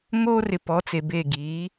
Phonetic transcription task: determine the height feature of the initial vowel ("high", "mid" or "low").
mid